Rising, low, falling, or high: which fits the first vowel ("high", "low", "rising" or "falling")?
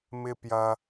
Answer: high